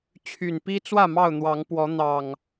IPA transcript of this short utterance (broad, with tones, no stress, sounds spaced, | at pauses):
t͡ɕʰ y˨˩ n p i˦ t͡s w ä˥˨ m ɑ˥˨ ʊ̯ n̪ w ɑ˨˦ ŋ p w ɔ˨˦ n̪ ɑ˨˩ ŋ